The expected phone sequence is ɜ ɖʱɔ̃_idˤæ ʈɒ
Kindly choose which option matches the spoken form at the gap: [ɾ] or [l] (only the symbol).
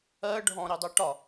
ɾ